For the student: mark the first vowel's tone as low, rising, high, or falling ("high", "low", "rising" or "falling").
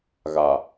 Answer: low